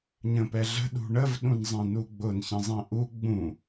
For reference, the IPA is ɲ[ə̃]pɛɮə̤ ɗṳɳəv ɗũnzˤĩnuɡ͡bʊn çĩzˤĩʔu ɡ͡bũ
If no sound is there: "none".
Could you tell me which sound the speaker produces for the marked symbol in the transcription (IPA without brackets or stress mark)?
ə̃